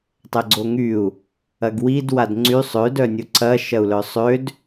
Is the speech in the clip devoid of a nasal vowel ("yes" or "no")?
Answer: yes